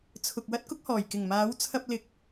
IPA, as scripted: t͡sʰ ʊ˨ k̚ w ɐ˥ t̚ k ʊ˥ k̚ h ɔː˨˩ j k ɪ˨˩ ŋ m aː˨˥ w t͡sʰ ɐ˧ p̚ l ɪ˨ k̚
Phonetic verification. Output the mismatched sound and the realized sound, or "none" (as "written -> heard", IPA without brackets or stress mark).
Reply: none